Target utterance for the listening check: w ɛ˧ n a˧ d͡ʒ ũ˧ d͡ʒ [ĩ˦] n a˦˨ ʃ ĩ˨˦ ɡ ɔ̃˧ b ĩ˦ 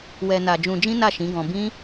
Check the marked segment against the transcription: correct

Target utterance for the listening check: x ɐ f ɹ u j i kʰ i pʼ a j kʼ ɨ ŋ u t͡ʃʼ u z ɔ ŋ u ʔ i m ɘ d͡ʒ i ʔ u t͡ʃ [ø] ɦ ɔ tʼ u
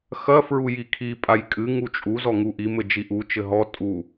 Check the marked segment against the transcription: incorrect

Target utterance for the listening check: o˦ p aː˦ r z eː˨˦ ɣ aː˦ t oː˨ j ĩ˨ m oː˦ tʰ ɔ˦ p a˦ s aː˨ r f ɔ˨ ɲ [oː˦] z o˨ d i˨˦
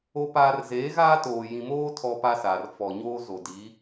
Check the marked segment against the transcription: correct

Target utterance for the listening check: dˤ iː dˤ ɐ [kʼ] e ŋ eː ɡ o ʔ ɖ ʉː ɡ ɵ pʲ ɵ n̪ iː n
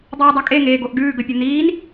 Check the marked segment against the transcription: correct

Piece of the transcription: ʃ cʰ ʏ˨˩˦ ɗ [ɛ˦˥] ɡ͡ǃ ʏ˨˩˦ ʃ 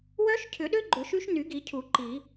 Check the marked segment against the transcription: incorrect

